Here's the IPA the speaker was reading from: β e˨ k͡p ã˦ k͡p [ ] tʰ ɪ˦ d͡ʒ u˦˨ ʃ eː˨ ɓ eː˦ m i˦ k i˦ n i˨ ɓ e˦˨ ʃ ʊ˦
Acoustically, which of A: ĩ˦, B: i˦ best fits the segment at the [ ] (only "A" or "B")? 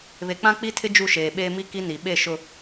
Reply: B